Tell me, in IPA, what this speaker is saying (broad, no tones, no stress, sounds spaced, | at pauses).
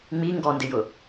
ŋ͡m i ŋ ɡ ɔ n d ɪ j ʊ